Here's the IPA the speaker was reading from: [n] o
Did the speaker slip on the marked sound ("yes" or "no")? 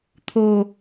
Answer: yes